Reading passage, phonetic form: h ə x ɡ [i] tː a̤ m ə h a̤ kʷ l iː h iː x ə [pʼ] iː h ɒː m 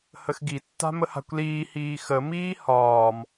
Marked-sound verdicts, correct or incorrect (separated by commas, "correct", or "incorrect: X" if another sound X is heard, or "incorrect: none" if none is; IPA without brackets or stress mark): correct, incorrect: m